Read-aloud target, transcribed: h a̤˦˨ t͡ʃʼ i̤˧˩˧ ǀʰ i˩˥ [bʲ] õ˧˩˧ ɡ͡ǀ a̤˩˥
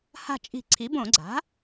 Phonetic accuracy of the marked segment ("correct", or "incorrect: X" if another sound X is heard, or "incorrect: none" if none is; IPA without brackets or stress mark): incorrect: b